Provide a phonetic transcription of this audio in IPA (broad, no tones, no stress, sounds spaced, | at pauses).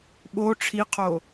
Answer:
ɓ o ʈ͡ʂʰ i qʰ o